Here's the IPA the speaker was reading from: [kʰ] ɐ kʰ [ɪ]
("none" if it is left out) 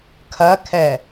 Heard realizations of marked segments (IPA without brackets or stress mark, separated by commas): kʰ, ɛ